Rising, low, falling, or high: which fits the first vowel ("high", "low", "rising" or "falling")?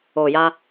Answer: low